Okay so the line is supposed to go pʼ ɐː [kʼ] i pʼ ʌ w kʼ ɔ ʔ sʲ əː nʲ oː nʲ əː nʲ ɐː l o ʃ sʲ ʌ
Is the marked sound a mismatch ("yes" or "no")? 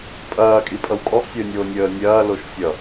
no